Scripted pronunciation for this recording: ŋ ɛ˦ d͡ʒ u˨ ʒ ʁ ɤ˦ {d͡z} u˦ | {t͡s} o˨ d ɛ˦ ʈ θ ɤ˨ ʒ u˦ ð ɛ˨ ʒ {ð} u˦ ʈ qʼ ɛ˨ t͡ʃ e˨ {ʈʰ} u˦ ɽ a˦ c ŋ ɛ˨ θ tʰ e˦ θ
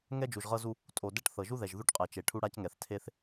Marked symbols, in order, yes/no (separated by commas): no, no, yes, yes